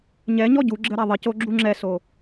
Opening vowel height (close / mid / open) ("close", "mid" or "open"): mid